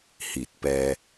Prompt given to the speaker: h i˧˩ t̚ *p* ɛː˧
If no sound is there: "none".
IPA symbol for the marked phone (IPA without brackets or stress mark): p